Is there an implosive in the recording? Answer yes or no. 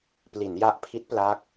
no